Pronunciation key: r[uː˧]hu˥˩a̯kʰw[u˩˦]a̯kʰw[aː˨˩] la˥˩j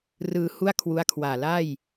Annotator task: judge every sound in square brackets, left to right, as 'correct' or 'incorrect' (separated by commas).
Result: incorrect, incorrect, correct